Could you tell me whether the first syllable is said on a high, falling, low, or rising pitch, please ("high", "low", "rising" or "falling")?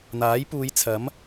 rising